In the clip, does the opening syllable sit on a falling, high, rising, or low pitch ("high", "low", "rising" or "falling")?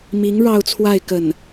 rising